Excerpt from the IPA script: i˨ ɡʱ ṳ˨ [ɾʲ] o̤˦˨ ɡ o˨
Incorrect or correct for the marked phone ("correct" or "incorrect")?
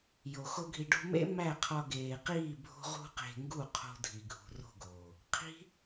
incorrect